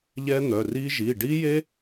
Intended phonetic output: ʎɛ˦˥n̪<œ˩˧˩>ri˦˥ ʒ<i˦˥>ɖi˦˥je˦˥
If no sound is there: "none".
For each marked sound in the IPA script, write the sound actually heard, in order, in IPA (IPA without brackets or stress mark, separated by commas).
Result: œ˩˧˩, i˩˧˩